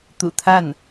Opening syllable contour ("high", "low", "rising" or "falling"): low